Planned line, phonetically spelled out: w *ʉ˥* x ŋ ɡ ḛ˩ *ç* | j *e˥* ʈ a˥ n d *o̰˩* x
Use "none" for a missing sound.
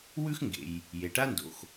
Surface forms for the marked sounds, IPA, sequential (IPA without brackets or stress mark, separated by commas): ʉ˥, j, e˩, o̰˩